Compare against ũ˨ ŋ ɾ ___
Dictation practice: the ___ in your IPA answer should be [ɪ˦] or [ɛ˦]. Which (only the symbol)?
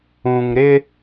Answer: ɪ˦